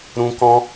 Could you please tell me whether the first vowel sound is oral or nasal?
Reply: nasal